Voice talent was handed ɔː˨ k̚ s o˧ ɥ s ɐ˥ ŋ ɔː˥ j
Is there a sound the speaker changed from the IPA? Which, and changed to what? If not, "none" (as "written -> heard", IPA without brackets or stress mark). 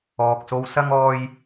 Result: ɥ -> w